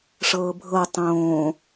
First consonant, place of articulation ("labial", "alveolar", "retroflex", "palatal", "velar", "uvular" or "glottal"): retroflex